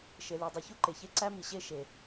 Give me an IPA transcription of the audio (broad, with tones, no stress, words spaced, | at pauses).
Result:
ʃe˩li˩dˤu˩ çu˥ǃe˩çe˥ ǀæ˥mi˩ɕe˥ ʃe˩